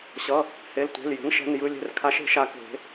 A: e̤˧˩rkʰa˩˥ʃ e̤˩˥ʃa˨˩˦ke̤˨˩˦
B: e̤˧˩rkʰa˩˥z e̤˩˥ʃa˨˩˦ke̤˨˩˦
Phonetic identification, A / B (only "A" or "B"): A